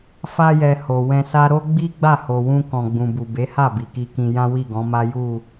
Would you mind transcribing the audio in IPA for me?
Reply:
f a˧ j ɛ˨ h o˨ w ɛ̃˧ s a˦ ɾ o˦ ɡ͡b i˦ ɡ͡b a˦˨ h o˨ w ũ˧ k ɔ̃˨ ɡ͡b ũ˨ b u˨ b e˨˦ h a˦˨ b i˨ k i˧ k ĩ˧ j ã˦ w i˦˨ ɡ ɔ̃˨˦ m a˦ j u˦˨

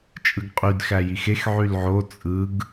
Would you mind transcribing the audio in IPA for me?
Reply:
t͡ʃʼ ɯ ɡ qʼ y d x æ j i x e x ʕ y l ʕ o t͡sʼ ɯ ɡ

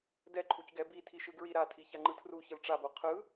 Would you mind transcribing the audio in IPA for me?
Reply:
d ɛ ǃʰ u c ɡ ɛ b i tʰ i ʃ ɯ ɡ ɹ i ɾ a tʰ i ç a ŋ͡ǃ ɯ tʰ r u ç ɯ l ʈ͡ʂ a b o qʰ ɯ

